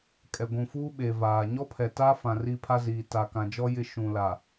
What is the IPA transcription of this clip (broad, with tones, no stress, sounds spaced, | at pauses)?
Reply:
kʼ ɛ˨ ɡʷ ũ˨ f uː˦ ɓ eː˨ v aː˨ ɲ ɔ˦ pʰ ɛ˨ t a˦ f ã˨ r i˦ pʰ a˦ z iː˨ t a˨ k ã˨ d͡ʒ ɔ˦ j ɪ˦ ʃ ũ˨ l a˨